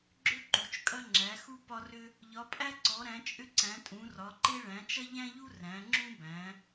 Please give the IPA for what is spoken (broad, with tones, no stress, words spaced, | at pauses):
ɡ͡ǁʏ˦ǃu˩˧t͡ʃ kʼɐ˦ŋ͡ǁæ˩˧xu˦ pɒ˦rʏ˦ | ʎɒ˩˧pʼæ˦ǀɔ˩˧ɾæ̃˩˧ t͡ʃʼʏ˦ǀæ̃˩˧ tʼũ˩˧rɒ˩˧ǃe˦ ɭæ̃˩˧t͡ʃɐ˦ʎæ̃˦ʎu˦ ræ̃˩˧ ŋ͡ǁũ˦bæ̃˩˧